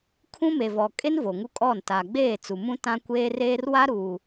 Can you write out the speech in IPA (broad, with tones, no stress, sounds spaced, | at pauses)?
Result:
kʰ ũ˦ m e˨ v ɔ˨ kʼ e˦ n v o˨ ŋ u˦ kʼ ɔ˦˨ n t a˨ ɡ͡b eː˦˨ t͡s u˨ m ũ˦ t ã˦ kʷ eː˦ r eː˦ r w a˦ ɾ uː˨